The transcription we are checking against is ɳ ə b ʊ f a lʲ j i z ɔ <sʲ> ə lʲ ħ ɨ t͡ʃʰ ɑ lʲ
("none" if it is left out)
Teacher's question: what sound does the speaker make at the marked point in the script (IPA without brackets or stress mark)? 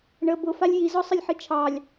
sˤ